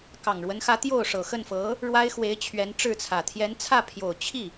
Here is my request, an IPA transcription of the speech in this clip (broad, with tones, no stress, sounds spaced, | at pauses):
k ɑ˨˩ ŋ ɻ w ə˧˥ n x ä˧˥ t̪ j o˥˩ ʊ̯ ʂ ɤ˨˩ x ə˥˩ n f ɤ˧˥ | ɻ w a˥ ɪ̯ x w e˧˥ ɪ̯ t͡ɕʰ ɥ ɛ˧˥ n ʈ͡ʂ ɻ̩˥˩ t͡sʰ ä˨˩ t̪ʰ j ɛ˧˥ n t͡sʰ ä˥˩ pʰ j o˨˩ ʊ̯ t͡ɕʰ i˥˩